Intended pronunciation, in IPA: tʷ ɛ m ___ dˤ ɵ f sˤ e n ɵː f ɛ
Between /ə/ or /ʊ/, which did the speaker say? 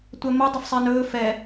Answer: ə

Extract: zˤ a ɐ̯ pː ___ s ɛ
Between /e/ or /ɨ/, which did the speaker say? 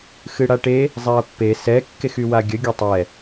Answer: e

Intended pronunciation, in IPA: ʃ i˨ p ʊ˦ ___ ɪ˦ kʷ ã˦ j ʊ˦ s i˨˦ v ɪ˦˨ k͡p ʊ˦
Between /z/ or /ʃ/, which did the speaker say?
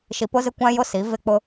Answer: z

